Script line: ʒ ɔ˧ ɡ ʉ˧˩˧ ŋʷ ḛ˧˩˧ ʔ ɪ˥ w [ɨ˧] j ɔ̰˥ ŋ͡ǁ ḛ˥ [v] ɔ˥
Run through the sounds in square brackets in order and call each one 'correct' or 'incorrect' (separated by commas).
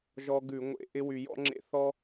incorrect, incorrect